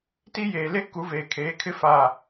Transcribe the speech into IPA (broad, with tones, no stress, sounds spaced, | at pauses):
t i˦ j eː˨ l e˦ k u˨˦ v eː˨ kʰ eː˨˦ kʰ ɪ˦ f a˨